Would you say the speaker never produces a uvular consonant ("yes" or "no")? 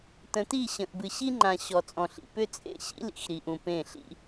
yes